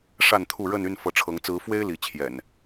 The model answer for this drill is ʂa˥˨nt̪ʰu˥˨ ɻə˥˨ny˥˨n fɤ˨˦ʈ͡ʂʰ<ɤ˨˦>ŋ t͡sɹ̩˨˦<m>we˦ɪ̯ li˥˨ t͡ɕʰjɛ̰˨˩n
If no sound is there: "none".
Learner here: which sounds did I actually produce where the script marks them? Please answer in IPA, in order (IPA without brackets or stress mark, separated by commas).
ɤ˨˦, f